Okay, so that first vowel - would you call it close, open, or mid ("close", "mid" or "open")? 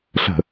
mid